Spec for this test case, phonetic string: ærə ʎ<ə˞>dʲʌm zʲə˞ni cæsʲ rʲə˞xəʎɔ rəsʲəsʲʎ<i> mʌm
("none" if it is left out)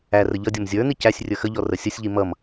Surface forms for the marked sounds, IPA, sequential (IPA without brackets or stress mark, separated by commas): ʌ, i